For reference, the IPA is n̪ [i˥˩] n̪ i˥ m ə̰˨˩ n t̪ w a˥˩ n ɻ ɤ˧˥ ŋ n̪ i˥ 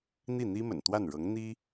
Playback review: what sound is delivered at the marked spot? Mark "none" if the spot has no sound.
i˥˩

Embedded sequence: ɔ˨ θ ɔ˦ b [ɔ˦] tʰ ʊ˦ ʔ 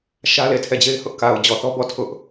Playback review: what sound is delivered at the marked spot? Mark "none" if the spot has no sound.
ɔ˦˨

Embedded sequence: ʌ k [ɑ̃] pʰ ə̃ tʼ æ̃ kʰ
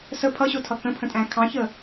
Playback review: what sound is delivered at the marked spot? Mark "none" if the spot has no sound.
ə̃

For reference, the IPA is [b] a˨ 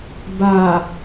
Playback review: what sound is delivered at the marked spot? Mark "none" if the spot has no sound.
b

